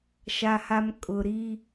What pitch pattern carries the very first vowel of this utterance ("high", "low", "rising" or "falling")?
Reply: low